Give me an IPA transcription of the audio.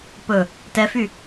pɵ | tɛfy

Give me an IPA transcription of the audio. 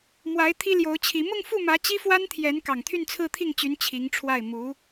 mwa˧˥ɪ̯ t̪ʰi˥ljo˧˥ʊ̯t͡ɕʰi˧˥ mʊ˥˧ŋfu˥˩mä˧˥ t͡ɕi˥fwa˥nt̪ʰjɛ˧˥n kɑ˨˩ŋt̪ʰy˥˧nt͡sʰɹ̩˥˧t̪ʰi˥˩ŋ t͡ɕy˧˥n t͡ɕʰi˧˥ŋʈ͡ʂʰwa˥˩ɪ̯ mu˧˥

